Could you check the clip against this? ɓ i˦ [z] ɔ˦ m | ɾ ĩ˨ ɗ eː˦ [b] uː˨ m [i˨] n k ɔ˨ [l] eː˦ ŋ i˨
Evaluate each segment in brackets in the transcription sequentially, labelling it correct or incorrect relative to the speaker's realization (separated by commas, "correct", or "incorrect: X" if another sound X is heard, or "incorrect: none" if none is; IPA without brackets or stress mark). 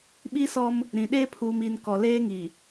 incorrect: s, incorrect: pʰ, correct, correct